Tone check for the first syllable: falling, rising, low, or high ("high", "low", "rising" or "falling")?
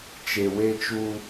low